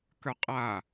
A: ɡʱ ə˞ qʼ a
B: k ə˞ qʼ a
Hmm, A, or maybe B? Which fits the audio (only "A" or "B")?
B